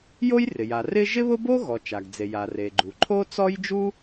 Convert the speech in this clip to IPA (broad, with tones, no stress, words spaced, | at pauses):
jo˥jrɪ˩ja˩ rɪ˥ ʒɪ˥βʊ˥bo˥ɣɔ˩ t͡ʃa˩ɡd͡ze˩ja˩ re˩ɡ͡ǃu˩ ǃʰo˥t͡sɔ˥j d͡ʒu˥